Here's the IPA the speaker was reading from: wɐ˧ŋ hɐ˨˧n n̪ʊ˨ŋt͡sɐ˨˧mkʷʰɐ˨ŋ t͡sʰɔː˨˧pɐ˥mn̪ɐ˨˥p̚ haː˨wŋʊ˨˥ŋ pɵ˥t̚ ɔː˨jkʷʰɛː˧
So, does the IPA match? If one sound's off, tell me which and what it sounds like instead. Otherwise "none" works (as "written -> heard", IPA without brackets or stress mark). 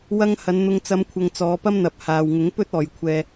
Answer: t͡sʰ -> t͡s